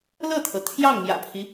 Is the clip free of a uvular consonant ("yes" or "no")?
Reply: yes